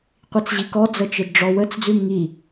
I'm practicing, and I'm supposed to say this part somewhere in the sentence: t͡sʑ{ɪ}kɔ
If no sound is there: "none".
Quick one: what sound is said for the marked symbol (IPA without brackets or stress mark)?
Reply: i